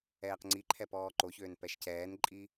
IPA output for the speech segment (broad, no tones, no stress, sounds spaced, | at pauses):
ɛː q ŋ͡ǀ i ǃʰ ɛ p ɔː ǃ o ç øː n p ɛ ʃ c ɛː n ǃʼ i